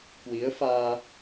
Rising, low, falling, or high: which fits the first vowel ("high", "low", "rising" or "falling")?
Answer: rising